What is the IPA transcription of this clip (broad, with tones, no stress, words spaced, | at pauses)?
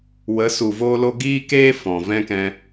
wə˨˦ su˨voː˦lo˦ ɡiː˦keː˦ fɔ̃˨ vɛ̃˦kɛ̃˧